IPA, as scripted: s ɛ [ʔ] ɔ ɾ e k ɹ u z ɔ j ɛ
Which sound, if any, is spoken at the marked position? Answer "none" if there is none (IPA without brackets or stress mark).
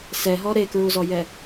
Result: ɦ